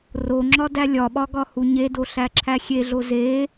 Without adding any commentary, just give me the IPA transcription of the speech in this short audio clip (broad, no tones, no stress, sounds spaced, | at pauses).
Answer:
r o ŋ͡ǁ ɒ d æ lʲ ɒ ɓ ɒ ɡ ɒ h u ɲ e d o ɬ æ ǁʰ æ xʲ e ɮ o z e